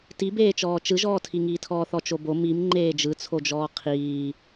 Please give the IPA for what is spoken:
t i b eː t͡ʃ ɔː t͡ʃ ɯ ʒ ɔː tʰ i ŋ iː tʰ ɔː θ ɔ t͡ʃ o b o m i m ŋ͡ǃ eː d͡ʒ ɯ t͡sʰ o d͡ʒ ɔː qʰ iː

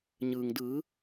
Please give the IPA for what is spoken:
ɲ ɯː˩ ŋ d ɯː˩˧

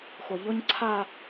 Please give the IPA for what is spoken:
x ʊ˨ ʎ ʊ˦ ɲ ǀʰ a˦

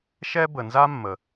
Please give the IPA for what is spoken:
ʃ ɛ˥ b ə˩ n z a˥ mː ə˩

